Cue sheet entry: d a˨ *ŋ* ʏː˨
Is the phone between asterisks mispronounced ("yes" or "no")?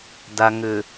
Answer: no